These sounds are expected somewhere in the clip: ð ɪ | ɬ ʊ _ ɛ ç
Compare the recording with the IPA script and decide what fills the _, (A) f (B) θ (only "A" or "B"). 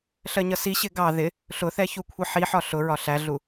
B